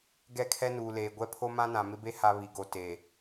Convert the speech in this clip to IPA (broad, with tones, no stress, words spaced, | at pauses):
ɡɛ˦˨kʰɛ˦nuː˨leː˨ ɡʷɛ˦pʰo˦ mã˦nã˨ mɪ˦be˦ ha˦ βi˨ɡo˨ te˨